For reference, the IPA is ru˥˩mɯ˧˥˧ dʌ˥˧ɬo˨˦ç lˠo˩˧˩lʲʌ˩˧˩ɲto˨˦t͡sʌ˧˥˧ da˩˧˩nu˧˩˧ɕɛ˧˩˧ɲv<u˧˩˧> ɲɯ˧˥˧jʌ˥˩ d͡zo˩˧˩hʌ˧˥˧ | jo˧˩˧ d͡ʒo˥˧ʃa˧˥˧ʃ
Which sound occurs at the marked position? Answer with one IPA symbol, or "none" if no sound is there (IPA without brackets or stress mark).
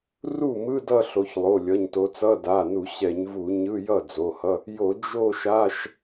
u˧˩˧